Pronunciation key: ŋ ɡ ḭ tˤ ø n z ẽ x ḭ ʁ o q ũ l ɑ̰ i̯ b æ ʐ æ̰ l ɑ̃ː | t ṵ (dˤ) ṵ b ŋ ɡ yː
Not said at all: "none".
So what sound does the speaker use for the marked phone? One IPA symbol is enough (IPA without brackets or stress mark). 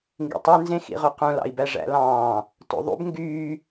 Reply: ðˤ